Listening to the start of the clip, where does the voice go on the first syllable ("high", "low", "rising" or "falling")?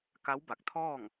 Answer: rising